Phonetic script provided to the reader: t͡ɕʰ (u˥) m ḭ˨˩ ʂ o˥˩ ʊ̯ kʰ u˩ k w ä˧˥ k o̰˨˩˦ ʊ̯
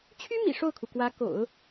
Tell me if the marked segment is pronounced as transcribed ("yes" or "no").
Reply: no